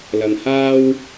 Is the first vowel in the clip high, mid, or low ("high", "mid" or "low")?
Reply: low